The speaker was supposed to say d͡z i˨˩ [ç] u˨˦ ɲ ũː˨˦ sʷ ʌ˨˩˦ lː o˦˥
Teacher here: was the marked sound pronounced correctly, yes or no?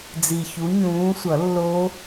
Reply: yes